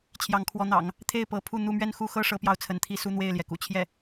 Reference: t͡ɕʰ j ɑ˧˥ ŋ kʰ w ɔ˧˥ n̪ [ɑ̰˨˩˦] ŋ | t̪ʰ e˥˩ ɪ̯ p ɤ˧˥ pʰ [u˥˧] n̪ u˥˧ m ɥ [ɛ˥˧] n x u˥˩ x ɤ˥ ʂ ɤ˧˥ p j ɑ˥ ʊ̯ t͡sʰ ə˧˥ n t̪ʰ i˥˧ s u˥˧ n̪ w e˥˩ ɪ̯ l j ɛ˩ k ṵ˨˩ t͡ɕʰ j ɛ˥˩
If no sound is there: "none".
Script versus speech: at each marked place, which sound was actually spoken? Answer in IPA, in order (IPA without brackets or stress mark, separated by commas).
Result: ɑ̰˨˩˦, u˥˧, ɛ˥˧